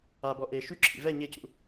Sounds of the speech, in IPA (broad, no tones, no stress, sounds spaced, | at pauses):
a b ɔ ʔ e ʃ y ǁʰ ḭ v ɛ ɲ e c ṵ